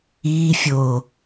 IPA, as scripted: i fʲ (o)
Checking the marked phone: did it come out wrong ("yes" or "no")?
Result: no